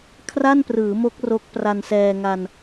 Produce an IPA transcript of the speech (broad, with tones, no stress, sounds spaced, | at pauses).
kʰ r a˥˩ n p r ɯː˩˦ m o˦˥ k̚ r o˦˥ k̚ p r a˧ n s ɛː˧ ŋ a˧ n